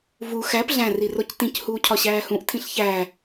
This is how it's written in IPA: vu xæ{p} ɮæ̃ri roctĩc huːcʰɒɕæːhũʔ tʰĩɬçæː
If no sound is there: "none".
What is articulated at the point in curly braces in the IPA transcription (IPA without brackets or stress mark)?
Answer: p